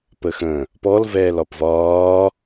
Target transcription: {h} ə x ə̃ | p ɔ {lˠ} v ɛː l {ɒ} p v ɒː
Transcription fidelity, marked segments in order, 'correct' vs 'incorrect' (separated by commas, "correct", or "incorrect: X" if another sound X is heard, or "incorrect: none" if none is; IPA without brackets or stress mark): incorrect: p, incorrect: l, correct